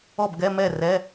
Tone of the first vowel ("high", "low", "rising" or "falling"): falling